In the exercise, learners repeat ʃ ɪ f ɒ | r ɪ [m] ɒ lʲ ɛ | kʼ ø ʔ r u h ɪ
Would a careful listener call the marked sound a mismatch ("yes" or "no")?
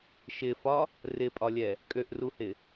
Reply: yes